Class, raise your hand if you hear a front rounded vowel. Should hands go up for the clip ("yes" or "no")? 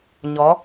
no